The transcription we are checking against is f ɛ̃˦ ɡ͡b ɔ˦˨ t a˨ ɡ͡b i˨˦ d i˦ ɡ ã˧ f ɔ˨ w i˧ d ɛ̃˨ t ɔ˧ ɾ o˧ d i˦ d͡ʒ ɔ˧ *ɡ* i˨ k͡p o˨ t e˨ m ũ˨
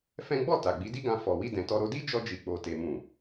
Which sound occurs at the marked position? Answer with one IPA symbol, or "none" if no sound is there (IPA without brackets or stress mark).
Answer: d͡ʒ